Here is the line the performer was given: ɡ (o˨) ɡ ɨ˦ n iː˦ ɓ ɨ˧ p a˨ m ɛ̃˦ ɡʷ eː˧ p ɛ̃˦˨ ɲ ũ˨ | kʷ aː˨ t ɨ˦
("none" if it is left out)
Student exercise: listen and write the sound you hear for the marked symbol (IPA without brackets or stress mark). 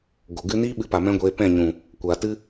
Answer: o˨